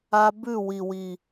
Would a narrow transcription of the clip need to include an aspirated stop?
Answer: no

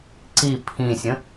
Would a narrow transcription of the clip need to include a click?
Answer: yes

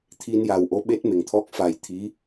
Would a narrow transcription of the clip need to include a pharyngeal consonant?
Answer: no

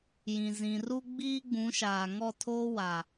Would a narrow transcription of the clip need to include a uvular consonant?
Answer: no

